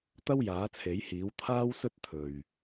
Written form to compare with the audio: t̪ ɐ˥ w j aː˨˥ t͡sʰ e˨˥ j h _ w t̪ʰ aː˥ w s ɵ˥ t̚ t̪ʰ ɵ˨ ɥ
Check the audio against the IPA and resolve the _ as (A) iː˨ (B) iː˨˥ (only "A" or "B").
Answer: B